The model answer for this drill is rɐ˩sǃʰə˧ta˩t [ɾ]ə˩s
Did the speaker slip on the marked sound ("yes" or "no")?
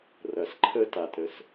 no